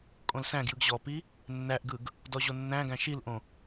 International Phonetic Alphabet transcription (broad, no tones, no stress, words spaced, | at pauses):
kʼõlsæ̃ɡjɯɡ ʑɔpi | nːæʔɡɯɡ | dɔʑonːæ̃ɡæ̃ ʃilʔõ